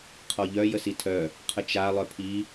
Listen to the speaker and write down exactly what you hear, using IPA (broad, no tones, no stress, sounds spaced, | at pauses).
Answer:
qʰ ɔ ʎ œ j ə s i tʰ œ | qʰ ə t͡ʃ a lˠ œ pʰ i